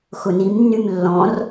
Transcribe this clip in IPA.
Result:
x ʊ n i m nː y m lː ɔ̃ r

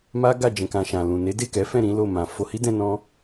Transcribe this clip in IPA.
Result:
m a˦ ɡ a˦˨ d͡ʒ ɛ̃˨ k ã˨ ʃ ã˨ l ũ˨ n e˨˦ d e˦˨ k ɛ˨˦ f ɛ̃˦˨ ɾ ĩ˨˦ l o˦˨ m ã˨ f o˧ h i˦ d ɛ̃˧ n ɔ̃˦

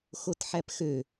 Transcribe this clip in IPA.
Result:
x o t ħ æ p x ø

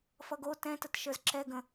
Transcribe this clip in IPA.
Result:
f ʌ ɡ o t ɛ̃ t ə t ʃ ə˞ z ǁ ɛ ɡ ə̃

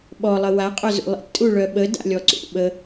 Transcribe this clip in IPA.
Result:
ɓ ɔ lˠ ə w a qʼ œ z ṵ lˠ ḭ tʼ u ɭ œ ɓ ə d a̰ lʲ ɔ ǀ ṵ ɓ ə

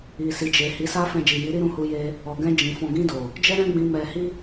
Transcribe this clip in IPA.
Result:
i˨ s i˨ d͡ʒ e˨ h i˨˦ s a˦ f ɛ̃˧ d͡ʒ i˨ j i˨˦ ɾ i˦ ɾ ũ˧ h u˧ j e˧ | ɔ˨ ɡ ɛ̃˧ d͡ʒ ĩ˨ f ɔ̃˨ ɡ ĩ˧ d o˨ | d͡ʒ ɛ˦ ɾ ɛ̃˦ ɡ͡b ĩ˧ m ɛ˧ h i˦

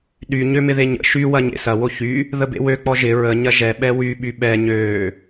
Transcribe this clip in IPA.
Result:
ɗ y ɲ ø m ɪ ð e ɲ ə̰ ʃ y w ɐ ɲ ḛ s ɐ w o ç y | ð ə b ḛ w ø k͡p ɔ ʒ ɪ ɹ ə ɲ ɐ ʒ ɛ ɓ ɛ w y ɓ y ɓ ɛ ɲ øː

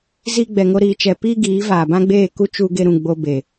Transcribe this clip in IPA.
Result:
z i˦ ɡ͡b ɛ˧ ŋ o˦ ɾ iː˧ t͡ʃ ɛ˧ p iː˦ ɡ iː˨˦ v aː˨ b ã˦ ɡ͡b eː˦˨ k u˦ t͡ʃ u˦ ɡ e˦ ɾ ũ˧ ɡ͡b o˧ b e˨

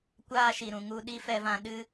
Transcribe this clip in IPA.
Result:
kʷ aː˦ ʃ i˨ ɾ ũ˨ ŋ u˧ ɗ i˦ f ɛ˧ v ã˧ ɗ ɨ˦

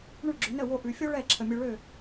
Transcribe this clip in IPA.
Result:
ɳ ʉ˥˩ ɡ͡ǁ ʏ˩˥ n ə˥˩ w o˧ ʔ ʉ˩ fʲ o˥ ɭ ɛ˥˩ ǁʰ ə˩ mʲ ø˧ ɭ ø˥˩

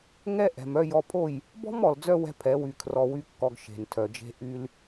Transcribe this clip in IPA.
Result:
ŋ ɛ˦ ʔ ɛ̤˨ m œ˧ j ɔ˧ pʰ o˦˨ j | b ɔ̤˦ m ɔ˨ l d͡z œ˧ w ɛ̤˦ pʰ ɛ˨˦ w y˧ kʰ r ɔ˧ w y˦ kː ɔ˧ ɡ ʃ e̤˨ n tʰ œ˨ d͡ʒ e̤˦ ʔ y˦ l

